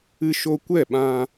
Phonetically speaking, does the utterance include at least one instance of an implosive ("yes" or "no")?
yes